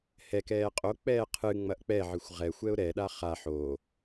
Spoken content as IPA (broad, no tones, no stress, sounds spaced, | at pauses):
h ɛ k ɛː qʼ o k͡p ɛː qʰ ɨ ŋ͡m ɐ ʔ k͡p ɛ ʕ ɨ xʷ ʁ ɛ xʷ ɛ ʊ̯ ɾ ɛ ɗ a χ a ħ o